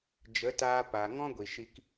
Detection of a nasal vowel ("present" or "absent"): present